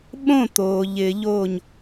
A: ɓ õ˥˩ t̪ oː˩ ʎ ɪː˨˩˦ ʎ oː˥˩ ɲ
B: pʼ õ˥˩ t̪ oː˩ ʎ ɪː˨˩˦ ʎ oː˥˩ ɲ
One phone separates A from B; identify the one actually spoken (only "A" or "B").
A